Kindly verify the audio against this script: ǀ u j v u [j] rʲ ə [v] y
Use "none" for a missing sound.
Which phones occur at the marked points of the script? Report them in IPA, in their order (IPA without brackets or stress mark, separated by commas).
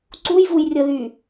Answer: j, ð